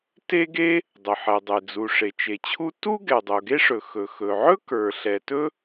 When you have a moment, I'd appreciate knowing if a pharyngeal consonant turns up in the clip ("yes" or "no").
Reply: yes